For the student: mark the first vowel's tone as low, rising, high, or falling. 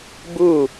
falling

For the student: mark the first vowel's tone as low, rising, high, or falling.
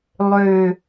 low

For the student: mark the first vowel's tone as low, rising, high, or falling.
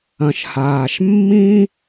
low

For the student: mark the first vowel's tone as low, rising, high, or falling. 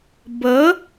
rising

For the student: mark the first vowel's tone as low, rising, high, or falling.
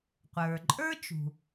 low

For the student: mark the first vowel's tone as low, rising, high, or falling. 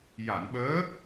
low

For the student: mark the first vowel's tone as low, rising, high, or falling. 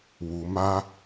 low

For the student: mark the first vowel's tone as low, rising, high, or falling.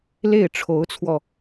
falling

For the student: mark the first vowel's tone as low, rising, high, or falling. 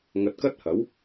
low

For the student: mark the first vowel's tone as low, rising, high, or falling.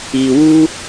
low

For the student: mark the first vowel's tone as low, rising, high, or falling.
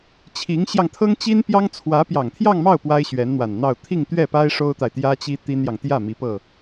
rising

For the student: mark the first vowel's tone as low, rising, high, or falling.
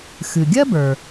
low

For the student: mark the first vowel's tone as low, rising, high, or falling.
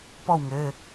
falling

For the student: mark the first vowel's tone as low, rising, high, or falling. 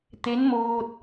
rising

